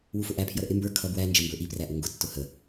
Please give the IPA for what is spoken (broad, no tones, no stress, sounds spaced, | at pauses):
w u f ʊ ʔ æ pʰ j ʌ ɾ ə ʔ ɪ m b ə˞ kʰ ʌ b w æ n d͡ʒ ə m b ə˞ ʔ i p r æ ʔ ʊ ŋ ɡ ʊ tː ʊ h ə